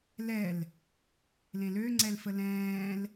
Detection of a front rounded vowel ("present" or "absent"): present